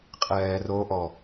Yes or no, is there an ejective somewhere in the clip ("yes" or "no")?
yes